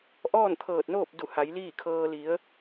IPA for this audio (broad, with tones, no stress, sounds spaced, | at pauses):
ʔ ɔː˥˨ n t̪ʰ ɤː˧˩ t̚ n oː˥˨ p̚ d u˧˩ h a˩˧ j l iː˥˨ kʰ ɤː˧ l i˩˧ ə̯